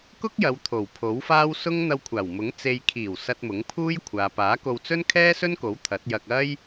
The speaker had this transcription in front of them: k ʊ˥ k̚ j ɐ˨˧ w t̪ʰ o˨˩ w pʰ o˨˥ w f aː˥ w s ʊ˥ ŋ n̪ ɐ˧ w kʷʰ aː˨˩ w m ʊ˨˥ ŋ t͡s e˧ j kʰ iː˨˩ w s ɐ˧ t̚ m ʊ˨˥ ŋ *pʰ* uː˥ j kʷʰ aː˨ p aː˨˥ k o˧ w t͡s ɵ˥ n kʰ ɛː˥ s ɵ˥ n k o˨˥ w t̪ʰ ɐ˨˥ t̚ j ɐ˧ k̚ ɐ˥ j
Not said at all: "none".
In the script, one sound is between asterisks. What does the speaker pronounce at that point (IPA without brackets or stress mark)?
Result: pʰ